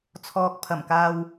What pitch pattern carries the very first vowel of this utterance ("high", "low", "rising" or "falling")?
low